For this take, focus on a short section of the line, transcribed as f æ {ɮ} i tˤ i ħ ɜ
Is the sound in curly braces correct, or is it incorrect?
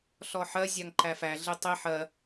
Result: correct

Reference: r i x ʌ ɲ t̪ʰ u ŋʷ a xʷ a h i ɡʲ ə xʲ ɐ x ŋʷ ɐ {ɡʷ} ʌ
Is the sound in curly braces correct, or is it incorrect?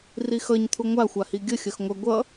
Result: correct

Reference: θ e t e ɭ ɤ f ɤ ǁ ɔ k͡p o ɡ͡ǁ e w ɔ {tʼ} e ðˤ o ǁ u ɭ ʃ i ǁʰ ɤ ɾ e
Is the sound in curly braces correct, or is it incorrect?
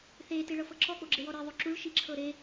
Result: incorrect: ɾ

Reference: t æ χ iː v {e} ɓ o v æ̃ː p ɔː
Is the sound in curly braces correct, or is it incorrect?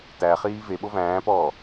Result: correct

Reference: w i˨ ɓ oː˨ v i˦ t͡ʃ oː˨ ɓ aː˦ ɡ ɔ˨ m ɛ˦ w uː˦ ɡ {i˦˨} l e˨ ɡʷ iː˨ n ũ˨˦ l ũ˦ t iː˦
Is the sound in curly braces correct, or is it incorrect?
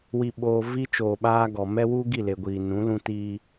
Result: correct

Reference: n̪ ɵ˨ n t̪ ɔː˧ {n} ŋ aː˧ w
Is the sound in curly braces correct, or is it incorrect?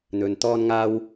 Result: correct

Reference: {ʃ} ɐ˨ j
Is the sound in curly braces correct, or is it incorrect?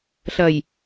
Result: incorrect: ɬ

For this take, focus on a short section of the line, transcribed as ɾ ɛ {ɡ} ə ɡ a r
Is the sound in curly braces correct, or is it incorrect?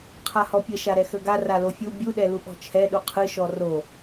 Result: incorrect: x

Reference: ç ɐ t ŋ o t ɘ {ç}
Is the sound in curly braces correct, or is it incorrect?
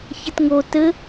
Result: incorrect: none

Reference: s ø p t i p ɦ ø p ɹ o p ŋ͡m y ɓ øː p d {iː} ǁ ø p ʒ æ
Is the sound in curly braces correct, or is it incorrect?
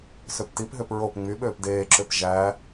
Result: incorrect: eː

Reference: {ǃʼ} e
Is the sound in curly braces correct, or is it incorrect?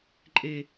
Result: correct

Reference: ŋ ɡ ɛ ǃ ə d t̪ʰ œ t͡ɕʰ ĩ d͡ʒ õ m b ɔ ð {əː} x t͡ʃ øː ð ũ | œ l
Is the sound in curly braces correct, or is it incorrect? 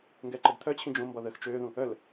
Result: correct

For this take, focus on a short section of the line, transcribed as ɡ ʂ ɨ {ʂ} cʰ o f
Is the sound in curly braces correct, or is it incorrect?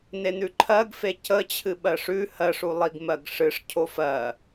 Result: correct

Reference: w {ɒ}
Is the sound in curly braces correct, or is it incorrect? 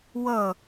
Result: incorrect: ʌ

